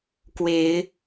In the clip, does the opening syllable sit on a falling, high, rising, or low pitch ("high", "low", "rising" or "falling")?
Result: rising